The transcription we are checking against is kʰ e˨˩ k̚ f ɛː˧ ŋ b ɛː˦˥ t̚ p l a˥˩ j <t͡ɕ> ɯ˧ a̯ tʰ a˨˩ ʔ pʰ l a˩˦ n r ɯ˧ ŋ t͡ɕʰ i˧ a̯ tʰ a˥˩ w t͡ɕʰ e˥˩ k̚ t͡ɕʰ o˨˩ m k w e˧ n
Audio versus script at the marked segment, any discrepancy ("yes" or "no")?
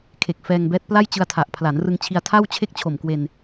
no